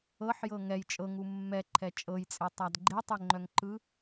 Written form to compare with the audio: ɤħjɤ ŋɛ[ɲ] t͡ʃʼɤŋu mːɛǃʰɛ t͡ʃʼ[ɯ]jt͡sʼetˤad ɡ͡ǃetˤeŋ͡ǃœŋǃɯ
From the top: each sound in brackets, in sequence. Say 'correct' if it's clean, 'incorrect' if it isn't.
incorrect: j, incorrect: ɤ

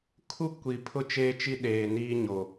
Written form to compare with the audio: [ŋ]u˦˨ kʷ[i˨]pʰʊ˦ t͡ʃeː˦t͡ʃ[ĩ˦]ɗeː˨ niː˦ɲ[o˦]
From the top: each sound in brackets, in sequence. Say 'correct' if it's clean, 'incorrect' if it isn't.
incorrect: kʰ, correct, incorrect: i˦, incorrect: o˨

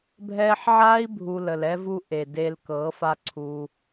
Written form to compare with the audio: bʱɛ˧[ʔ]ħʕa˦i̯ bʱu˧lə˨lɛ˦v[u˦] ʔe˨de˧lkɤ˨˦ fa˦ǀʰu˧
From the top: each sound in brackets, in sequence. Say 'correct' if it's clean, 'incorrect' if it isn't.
incorrect: none, correct

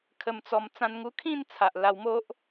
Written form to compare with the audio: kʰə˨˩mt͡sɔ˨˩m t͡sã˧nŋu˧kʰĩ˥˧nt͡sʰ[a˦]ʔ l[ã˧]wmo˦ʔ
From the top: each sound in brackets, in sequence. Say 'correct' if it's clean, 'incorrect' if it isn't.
incorrect: a˨, incorrect: a˧

